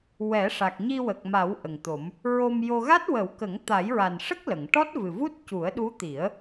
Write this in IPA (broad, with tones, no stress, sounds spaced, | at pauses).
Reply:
w ɛ˨˩˦ ʂ a˨˩ k̚ ɲ i˧ w ə˨˩ k̚ m a˨˩˦ w ʔ ə˨˩ ŋ t̪ o˨˩˦ m | ɹ o˧ m j o˧ ɣ a˦˥ t̚ w ə˨˩˦ w k ə˨˩˦ ŋ t̪ a˨˩˦ j ɹ a˨˩ n ʂ ə˦˥ k̚ l ə˨˩˨ ŋ ʈ ɔ˦˥ t̚ v ɨ˨˩ v u˦˥ t̚ c u˨˩˦ ə̯ ɗ u˧˥ t̪ i˨˩˦ ə̯